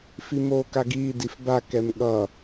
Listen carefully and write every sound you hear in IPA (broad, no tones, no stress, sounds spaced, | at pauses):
f i m oː k a ɡ iː d i f b a k ɛ m ɠ ʌ